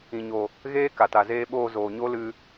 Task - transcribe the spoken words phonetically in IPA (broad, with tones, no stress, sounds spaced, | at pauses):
ĩ˨ ɲ o˨ | ɣ eː˦ k a˨ t a˨ z eː˧ ɓ oː˧ z oː˨ ɲ o˦ l ɨ˧